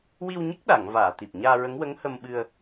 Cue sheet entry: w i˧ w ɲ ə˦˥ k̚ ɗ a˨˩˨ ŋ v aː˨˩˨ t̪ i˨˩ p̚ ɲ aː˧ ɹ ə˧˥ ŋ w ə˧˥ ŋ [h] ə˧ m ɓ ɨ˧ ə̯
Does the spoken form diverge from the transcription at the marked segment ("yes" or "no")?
no